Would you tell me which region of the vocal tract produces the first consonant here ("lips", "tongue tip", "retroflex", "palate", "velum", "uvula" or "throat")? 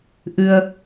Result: throat